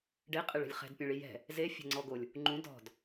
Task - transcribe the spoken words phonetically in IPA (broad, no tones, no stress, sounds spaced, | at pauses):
ɖ e qʼ e ɭ e̤ lʲ χ ɛ̤ d pʲ ẽ ɭ i j ɛ̤ | z e fʲ ɛ̤ ŋ͡ǀ ɔ ɡ o lʲ | ŋ͡ǃ ũ d ɔ̤ d